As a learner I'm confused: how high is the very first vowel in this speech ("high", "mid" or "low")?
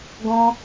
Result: mid